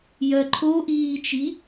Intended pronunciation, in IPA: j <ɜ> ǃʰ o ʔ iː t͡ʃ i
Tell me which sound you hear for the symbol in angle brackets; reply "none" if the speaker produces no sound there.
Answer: ɜ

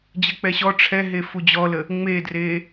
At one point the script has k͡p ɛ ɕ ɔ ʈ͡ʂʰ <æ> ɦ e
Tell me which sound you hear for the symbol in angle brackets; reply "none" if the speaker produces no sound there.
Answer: ɛ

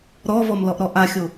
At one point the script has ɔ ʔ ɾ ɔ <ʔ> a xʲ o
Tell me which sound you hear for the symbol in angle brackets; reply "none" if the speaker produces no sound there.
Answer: ʔ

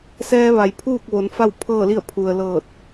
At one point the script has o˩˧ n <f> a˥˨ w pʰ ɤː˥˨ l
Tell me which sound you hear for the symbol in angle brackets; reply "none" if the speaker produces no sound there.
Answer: f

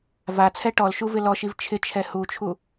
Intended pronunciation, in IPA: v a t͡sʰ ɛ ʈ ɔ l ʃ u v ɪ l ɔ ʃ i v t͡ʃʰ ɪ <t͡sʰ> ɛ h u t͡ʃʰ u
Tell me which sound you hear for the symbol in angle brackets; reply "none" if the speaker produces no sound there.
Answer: t͡ʃʰ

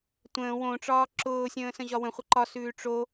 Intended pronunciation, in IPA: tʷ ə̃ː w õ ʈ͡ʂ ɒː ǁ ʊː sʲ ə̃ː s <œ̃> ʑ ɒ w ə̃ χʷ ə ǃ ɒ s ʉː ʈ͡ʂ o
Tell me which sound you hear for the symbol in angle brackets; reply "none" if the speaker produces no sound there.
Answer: ə̃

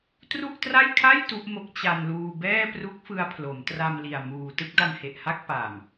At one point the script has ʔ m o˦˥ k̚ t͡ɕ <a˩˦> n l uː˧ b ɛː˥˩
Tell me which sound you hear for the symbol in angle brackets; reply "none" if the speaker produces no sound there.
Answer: a˧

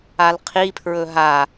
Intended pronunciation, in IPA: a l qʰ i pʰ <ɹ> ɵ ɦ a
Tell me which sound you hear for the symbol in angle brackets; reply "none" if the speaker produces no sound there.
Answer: ɹ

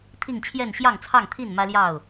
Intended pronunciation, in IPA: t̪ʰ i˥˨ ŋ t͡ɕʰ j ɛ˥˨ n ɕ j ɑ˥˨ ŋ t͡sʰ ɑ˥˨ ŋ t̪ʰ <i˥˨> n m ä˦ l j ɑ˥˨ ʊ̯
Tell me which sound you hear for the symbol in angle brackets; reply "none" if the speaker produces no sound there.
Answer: i˥˨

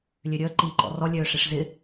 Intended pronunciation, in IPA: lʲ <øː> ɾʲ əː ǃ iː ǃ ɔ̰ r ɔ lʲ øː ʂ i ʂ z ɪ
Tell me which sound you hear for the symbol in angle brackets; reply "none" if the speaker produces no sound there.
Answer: ø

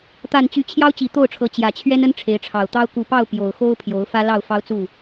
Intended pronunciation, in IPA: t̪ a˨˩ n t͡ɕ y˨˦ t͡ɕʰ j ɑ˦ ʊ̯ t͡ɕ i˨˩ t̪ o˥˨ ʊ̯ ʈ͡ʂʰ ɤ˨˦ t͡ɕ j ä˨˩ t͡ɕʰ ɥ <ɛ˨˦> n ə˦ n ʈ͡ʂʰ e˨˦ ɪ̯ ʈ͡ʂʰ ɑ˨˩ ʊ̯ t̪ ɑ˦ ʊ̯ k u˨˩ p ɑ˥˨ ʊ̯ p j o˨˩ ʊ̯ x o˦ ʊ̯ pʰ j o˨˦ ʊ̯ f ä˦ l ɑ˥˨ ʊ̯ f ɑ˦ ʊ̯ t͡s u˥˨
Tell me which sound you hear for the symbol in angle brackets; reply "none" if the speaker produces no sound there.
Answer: ɛ˦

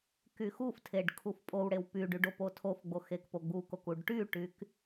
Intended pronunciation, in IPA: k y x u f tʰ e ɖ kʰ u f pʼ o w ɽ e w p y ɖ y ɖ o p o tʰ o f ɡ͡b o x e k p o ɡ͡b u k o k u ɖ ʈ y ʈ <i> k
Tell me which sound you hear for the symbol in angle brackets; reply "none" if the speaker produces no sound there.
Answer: y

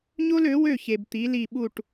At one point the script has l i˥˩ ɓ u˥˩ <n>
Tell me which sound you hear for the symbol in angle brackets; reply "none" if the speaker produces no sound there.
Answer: ʈ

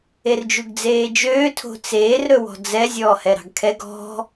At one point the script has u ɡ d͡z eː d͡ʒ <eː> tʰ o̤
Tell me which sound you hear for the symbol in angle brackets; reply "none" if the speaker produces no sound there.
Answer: øː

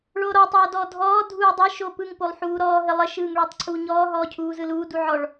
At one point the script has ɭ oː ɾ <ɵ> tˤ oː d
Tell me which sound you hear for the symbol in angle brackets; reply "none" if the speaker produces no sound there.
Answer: ɔ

